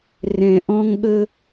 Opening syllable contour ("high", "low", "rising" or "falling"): low